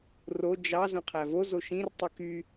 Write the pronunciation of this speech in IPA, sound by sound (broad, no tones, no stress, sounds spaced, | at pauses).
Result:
r o d͡ʒ ɑ z õ qʰ æ v o z o ʃ ĩ r tˤ ɯ k y